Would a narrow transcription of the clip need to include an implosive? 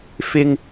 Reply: no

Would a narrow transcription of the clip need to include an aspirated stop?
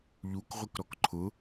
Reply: yes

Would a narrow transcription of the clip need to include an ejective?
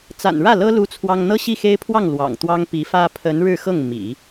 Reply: no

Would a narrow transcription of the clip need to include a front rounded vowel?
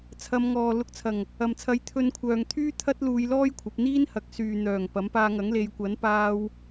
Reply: yes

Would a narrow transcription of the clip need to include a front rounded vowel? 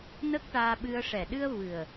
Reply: no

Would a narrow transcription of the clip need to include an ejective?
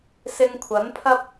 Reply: no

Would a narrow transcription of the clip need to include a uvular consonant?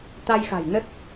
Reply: no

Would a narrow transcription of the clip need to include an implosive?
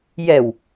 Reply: no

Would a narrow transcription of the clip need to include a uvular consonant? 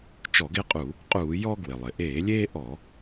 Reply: yes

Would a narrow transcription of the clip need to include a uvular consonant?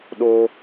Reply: no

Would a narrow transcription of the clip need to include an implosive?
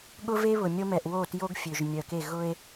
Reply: yes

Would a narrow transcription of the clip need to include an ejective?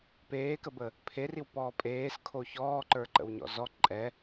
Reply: yes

